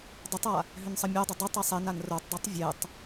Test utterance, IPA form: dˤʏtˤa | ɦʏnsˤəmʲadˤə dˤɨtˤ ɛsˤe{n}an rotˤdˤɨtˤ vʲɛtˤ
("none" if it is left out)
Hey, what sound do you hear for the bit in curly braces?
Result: n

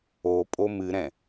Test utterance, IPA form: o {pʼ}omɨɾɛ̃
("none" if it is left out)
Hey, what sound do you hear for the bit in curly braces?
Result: pʼ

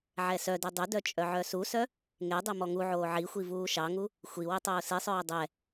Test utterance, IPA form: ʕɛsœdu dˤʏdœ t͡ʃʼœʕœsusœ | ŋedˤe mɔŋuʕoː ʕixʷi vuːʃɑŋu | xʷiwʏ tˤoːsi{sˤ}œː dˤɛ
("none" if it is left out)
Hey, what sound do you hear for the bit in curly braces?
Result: sˤ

